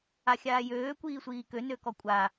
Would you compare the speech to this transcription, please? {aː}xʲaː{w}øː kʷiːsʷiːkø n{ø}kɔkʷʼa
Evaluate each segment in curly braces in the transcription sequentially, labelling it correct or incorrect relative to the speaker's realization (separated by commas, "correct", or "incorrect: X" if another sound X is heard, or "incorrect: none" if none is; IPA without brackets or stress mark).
incorrect: a, incorrect: j, correct